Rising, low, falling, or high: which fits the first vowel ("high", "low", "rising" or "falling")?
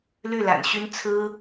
falling